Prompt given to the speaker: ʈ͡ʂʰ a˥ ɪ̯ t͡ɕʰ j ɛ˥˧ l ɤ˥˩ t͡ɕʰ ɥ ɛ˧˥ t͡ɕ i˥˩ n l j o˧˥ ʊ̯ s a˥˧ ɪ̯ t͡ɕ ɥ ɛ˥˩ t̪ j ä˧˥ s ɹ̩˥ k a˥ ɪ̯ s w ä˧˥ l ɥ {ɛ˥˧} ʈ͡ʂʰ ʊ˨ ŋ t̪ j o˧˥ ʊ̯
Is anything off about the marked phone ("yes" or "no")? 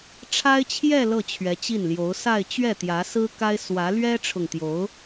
yes